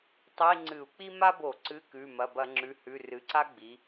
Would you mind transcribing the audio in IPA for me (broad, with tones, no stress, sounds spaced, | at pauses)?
tˤ i˧˥˧ ŋ͡ǀ ɨ˧˩˧ u̯ k͡p i˥ m a˥ b o˧˩˧ ǀ ɨ˧˥˧ k ʉ˩˧˩ m ɐ˩˧˩ b ɐ˧˩˧ ŋ͡ǁ ʉ˩˧˩ h ʉ˩˧˩ r ɨ˩˧ ǀ a˥ ɡ͡b i˩˧